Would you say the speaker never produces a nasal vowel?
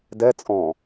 no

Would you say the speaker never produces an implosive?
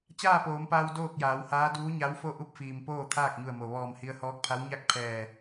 yes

